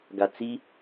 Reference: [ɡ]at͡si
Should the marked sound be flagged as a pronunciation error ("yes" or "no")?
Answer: no